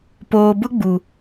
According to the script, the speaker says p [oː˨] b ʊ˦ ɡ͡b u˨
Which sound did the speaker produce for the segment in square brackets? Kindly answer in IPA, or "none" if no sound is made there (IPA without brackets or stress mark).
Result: oː˨